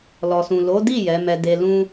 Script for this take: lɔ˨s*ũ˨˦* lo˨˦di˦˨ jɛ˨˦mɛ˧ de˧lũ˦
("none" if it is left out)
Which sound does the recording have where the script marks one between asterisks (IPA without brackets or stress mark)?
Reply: ũ˨